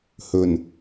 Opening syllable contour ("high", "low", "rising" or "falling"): low